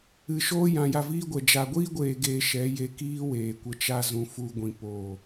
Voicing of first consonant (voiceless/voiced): voiceless